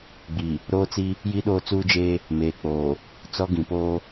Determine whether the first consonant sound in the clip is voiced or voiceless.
voiced